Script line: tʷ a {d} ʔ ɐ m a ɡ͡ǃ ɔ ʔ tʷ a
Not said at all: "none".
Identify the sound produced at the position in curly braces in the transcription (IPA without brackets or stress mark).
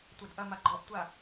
d